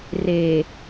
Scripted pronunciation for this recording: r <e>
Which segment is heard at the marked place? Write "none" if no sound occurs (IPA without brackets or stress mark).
e